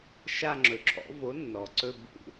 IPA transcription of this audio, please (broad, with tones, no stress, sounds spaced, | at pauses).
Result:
ʃ a˥˧ ŋ͡ǁ ɵ˩ ǁʰ ɔ̰˨˥ v o˨˥ nː ɔ˩ ǀ ɵ˥˧ b ṵ˥˧